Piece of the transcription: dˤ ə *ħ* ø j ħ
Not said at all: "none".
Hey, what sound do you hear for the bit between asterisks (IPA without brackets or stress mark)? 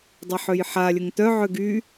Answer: ħ